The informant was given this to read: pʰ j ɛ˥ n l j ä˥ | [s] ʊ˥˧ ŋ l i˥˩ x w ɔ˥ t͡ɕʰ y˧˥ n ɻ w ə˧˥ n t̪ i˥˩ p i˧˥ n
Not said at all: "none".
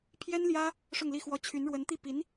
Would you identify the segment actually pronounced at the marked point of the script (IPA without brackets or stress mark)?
ʂ